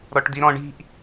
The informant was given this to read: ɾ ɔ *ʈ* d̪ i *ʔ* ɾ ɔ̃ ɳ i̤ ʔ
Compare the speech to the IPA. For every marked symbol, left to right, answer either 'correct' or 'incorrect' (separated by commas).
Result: correct, incorrect